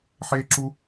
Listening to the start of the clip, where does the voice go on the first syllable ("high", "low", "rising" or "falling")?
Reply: high